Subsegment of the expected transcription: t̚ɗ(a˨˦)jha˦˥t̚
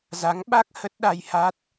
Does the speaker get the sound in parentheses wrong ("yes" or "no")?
yes